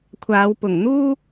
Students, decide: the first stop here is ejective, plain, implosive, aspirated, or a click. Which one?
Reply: aspirated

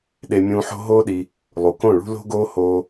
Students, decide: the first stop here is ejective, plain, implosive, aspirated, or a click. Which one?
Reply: implosive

